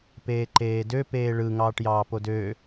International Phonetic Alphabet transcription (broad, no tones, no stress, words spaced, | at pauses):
peːǃeːdø peːɭɯ ŋɑːʈjɑːpodøː